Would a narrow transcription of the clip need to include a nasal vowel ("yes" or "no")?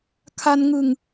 no